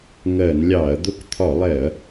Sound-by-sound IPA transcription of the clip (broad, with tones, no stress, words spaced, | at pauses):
ŋɜ˧˩˧nlʲɑ˧˩˧ɐ̯ d̪ʊ˧˥˧kt̪ʰɒ˧˩˧lˠɛ˧˩˧ɐ̯